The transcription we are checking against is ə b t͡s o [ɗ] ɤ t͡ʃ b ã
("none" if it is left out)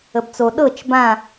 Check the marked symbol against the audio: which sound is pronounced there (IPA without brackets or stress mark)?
ɗ